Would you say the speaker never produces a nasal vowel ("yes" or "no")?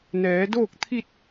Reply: yes